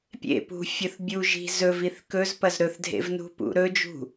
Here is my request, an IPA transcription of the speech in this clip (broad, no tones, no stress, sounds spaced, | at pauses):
pʲ ḛ p ṳ fʲ ɵ θ bʲ u ʒ i̤ z ɵ v i θ k ɵ z p ɐ z ɾ ɵ θ dʱ ḛ v n ṳ p ṵ ɾ ɵ d͡ʒ ṳ